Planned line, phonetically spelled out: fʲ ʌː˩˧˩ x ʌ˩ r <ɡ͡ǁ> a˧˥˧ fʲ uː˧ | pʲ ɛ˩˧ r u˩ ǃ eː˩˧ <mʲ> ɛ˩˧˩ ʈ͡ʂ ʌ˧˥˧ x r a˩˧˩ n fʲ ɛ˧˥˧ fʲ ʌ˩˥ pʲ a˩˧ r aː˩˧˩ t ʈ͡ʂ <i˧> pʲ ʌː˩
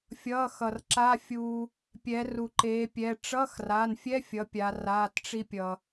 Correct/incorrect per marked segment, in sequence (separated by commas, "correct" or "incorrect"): incorrect, incorrect, correct